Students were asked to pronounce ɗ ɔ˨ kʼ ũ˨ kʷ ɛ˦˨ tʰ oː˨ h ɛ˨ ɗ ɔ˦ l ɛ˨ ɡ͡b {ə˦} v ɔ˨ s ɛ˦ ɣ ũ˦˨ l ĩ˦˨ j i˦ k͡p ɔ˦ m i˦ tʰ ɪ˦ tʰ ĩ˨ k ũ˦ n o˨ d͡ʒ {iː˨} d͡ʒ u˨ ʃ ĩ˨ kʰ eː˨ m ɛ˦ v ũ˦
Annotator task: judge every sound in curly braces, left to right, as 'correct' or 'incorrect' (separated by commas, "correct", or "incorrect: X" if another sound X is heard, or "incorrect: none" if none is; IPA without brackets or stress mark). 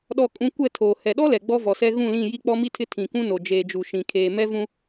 incorrect: ɔ˦, incorrect: eː˨